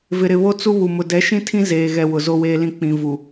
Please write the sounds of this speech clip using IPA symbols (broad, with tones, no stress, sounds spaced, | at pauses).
v ɪ˨ ɾ ɪ˨ β o˦ t͡s u˦ β u˨ m ʊ˨ d ɛ˨˦ ʃ ĩ˦ tʰ ĩ˦ z eː˨ ɣ ɛ˨ w ʊ˨ z o˦ w eː˦ l ĩ˦ k͡p ĩ˨ v u˨